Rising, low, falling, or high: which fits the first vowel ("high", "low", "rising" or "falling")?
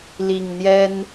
low